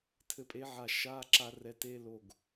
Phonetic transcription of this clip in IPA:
tʰ ɘ˧˥ pʼ e˧˥ ʕ a˧˩ ʃ aː˧˥˧ ǁ a˧ r ɛ˧ t e˧˥˧ l o˧˩ ɡ

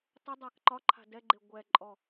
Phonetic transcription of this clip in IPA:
tˤ ʏ dˤ a k ǃ ɒ ǃʰ a̤ d ɛ ɡ͡ǃ e ɡʷ ɛ ǃʼ ɔ

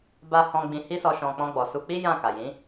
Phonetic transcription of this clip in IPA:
b a˧ h ɔ̃˧ ɡ͡b ĩ˧ h i˦ s ɔ˧ ʃ ɔ̃˨ k͡p ɔ̃˧ ɡ͡b ɔ˨ s u˧ k͡p i˦ j ã˦˨ k a˨ j ĩ˨˦

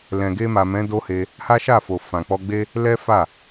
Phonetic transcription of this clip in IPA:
l ɛ̃˨ ɡ e˧ m a˨ m ɛ̃˨˦ d o˦ h e˧ | h a˦ ʃ a˦˨ f o˨ f ã˨ k͡p ɔ˧ ɡ͡b e˦ | l ɛ˦ f a˦˨

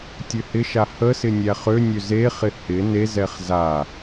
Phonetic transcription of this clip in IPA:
tʲ ø h ɪ ʃ a h ə s ɪ nʲ æ χ ø nʲ ø z e χ ɪ h ɪ n e z ɛ χ z a

